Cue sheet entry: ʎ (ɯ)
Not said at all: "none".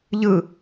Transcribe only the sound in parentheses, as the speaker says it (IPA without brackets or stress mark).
ɯ